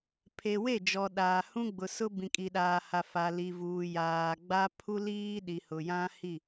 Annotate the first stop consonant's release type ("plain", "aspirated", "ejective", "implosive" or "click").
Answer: aspirated